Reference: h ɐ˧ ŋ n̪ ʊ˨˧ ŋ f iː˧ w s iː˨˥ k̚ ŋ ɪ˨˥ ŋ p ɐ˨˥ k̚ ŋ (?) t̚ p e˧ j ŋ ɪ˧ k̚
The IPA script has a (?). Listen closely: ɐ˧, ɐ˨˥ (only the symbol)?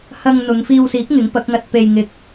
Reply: ɐ˧